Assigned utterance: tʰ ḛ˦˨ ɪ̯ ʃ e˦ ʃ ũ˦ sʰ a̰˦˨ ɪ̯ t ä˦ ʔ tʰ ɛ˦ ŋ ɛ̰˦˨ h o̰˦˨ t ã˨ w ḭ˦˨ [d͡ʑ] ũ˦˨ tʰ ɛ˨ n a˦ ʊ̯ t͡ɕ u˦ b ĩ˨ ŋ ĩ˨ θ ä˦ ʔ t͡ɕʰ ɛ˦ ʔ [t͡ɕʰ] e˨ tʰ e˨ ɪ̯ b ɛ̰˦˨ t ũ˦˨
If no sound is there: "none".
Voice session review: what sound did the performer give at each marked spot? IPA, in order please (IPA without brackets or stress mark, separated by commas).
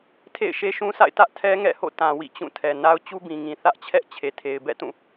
t͡ɕ, t͡ɕʰ